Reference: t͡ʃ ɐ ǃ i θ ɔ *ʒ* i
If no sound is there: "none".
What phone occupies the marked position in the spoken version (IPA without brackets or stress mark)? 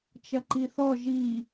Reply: ʒ